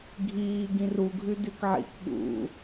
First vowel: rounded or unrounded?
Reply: unrounded